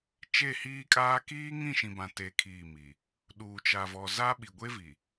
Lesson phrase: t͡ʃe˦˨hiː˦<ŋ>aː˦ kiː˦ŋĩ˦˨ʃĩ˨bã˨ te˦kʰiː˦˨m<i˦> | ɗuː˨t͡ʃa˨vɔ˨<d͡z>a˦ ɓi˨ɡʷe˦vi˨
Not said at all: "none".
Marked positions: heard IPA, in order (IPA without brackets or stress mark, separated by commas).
kʼ, i˨, z